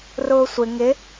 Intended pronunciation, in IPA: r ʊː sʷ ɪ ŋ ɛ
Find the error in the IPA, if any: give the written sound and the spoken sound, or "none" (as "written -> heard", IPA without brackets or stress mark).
ɛ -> ɪ